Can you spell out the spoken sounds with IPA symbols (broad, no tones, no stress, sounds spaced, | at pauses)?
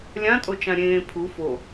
lʲ ã tʼ o t͡ʃ ã ɾʲ ẽː pʰ u f o